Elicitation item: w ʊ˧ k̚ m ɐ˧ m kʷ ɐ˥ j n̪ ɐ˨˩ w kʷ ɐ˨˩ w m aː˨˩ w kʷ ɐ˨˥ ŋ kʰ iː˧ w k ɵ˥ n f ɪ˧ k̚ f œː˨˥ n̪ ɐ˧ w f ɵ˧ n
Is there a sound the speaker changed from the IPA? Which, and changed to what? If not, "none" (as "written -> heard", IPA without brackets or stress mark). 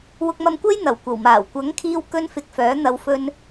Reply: none